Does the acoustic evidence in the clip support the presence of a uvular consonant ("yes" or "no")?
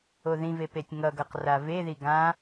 yes